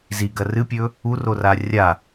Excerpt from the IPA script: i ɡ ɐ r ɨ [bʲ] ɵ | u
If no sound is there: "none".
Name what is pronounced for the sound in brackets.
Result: pʲ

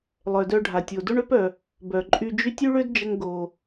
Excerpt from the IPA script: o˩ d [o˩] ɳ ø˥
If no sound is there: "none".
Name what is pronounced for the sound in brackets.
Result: o˥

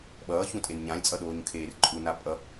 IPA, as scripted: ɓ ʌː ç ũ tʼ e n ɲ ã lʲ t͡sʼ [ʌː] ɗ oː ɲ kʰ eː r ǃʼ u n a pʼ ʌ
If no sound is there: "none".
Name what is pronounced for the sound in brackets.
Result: ʌ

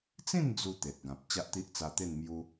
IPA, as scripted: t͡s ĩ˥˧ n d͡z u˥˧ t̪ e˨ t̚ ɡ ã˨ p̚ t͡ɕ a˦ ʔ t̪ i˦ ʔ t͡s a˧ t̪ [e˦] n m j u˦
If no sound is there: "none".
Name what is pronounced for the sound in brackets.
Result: e˥˧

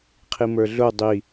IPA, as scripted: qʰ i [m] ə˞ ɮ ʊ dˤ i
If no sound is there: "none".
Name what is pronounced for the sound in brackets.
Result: m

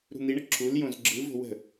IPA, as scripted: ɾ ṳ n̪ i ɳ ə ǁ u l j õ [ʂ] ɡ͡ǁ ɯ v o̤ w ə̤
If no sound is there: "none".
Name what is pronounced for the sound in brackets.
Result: z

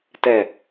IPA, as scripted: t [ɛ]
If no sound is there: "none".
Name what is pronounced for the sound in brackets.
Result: ɛ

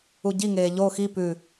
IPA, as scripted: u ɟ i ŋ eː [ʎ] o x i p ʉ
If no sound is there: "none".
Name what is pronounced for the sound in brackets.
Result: ʎ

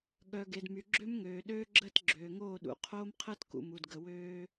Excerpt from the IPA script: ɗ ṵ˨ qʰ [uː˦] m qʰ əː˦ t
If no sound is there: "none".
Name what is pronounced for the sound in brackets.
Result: oː˦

